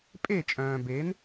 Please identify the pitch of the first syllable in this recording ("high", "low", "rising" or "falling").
falling